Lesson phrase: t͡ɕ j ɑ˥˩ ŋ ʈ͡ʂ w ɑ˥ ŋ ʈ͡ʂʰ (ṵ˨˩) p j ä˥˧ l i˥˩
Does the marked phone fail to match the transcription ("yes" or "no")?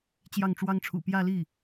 no